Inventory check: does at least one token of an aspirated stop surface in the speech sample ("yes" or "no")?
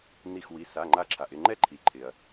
yes